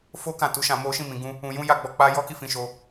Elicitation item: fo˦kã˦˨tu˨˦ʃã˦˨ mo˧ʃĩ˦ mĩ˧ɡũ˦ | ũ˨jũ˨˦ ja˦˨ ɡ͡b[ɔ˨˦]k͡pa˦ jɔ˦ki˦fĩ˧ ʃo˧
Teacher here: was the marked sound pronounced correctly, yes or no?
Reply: no